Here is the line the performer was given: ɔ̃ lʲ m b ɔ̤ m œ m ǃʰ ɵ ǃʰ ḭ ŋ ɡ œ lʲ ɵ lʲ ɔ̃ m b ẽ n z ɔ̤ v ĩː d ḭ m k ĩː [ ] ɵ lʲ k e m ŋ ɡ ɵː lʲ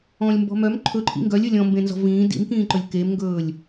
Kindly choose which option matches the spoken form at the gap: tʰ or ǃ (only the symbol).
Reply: ǃ